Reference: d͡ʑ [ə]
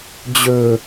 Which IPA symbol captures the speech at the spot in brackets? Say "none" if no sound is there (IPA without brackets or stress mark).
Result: ɵ